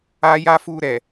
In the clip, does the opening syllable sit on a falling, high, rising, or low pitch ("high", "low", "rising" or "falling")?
high